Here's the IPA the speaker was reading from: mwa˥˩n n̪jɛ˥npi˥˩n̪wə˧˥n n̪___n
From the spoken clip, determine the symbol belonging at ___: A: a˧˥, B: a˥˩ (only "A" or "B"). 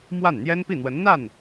B